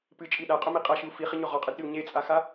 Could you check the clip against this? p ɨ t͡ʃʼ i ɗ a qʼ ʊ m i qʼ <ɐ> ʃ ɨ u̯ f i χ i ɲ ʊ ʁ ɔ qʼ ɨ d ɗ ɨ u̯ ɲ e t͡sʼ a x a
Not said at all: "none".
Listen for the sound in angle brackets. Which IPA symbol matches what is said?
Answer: a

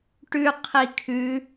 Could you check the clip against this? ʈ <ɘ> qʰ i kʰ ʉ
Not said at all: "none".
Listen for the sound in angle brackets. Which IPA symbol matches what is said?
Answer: ʉ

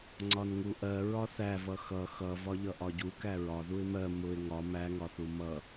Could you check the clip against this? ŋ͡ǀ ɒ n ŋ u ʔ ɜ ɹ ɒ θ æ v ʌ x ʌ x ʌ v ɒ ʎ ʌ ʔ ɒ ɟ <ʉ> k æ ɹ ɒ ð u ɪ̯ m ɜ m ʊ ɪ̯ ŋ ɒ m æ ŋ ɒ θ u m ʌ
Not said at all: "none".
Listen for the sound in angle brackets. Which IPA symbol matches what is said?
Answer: u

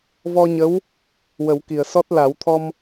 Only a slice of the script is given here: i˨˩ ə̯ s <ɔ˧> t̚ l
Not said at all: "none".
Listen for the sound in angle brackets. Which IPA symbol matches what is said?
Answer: ɔ˦˥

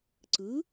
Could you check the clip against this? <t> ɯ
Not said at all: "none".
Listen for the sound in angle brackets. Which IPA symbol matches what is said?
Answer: ǀ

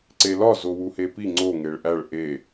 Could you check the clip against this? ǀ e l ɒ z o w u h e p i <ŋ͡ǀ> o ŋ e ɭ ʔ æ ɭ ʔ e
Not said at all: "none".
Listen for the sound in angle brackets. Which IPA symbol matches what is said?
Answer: ŋ͡ǀ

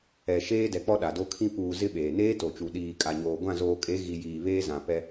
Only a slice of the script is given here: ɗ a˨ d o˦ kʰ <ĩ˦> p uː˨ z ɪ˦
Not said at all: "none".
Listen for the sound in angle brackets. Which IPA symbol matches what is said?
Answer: ĩ˦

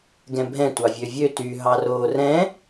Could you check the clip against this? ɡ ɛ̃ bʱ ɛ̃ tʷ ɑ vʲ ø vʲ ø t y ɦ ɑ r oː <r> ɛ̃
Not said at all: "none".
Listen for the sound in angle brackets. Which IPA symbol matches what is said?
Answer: r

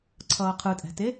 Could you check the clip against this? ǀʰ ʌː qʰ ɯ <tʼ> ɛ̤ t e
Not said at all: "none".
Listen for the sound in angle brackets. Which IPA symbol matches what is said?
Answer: tʼ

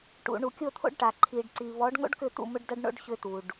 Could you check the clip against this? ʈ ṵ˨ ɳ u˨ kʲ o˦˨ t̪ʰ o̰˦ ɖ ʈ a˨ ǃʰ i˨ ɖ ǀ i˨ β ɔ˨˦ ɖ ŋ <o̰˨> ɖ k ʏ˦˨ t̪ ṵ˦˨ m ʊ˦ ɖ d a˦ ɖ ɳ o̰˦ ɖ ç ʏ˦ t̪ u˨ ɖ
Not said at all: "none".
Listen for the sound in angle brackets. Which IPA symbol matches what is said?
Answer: o̰˦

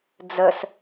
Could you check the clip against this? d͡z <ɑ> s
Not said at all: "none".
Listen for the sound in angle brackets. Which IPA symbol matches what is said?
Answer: ə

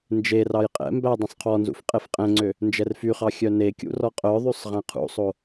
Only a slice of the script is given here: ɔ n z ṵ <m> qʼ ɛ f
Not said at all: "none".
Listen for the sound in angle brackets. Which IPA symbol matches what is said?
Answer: f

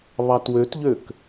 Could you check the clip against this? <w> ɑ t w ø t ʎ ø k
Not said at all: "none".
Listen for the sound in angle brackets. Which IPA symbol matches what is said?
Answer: β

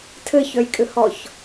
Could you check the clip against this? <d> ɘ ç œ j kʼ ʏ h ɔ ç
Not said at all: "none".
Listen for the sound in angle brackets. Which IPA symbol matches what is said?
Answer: tʰ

